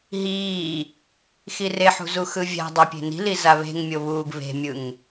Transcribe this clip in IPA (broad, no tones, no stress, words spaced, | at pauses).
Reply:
ɦiː | xireħṳzu xɯvʲa̤dˤapʲe̤ ni̤liza βe̤ŋmʲoβuːɡ βe̤mʲɯŋ